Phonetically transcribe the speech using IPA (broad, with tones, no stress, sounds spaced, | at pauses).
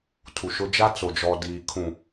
tʰ u˨ ʃ ʊ˦ d͡ʒ a˦ t͡s o˨ d͡ʒ ɔ˨ d iː˨ kʰ ũ˨